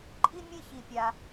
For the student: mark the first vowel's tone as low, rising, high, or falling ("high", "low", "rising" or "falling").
high